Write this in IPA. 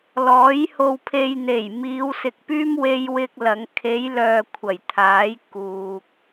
l ɔː˨˥ j h o˧ w pʰ e˧ j n̪ e˨˩ j m iː˨˧ w s ɪ˨ k̚ p yː˥ m w e˥ j w ɪ˥ k̚ l ɐ˨˧ ŋ kʰ e˨˧ j l œː˨ kʷʰ ɐ˨˩ j t̪ʰ aː˨˥ j k uː˨ k̚

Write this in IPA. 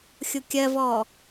xʲ ʊ kʲ ɜ v ɔː

